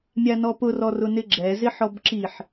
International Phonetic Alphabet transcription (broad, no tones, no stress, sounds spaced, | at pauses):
mʲ a n ɔ p ʊ r ɔ r ʊ n ɪ ɡ͡ǁ ɛ z ɪ ħ ɔ b ǁ i ħ